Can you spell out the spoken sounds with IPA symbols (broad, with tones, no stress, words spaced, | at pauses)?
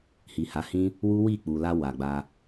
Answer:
hi˨ha˨˦hĩ˦ | wu˦wi˦˨k͡pu˨ la˧ wa˨ɡ͡ba˧